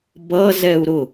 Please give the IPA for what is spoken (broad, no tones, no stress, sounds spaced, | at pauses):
b ʌ z ɛ u̯ ɾ ʊ